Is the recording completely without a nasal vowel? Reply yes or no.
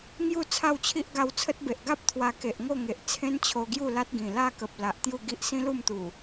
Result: no